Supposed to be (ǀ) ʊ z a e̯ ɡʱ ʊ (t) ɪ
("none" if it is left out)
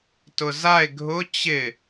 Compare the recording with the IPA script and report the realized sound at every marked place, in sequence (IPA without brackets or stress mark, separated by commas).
t, t͡ɕ